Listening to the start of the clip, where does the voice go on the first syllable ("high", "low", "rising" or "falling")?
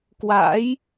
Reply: rising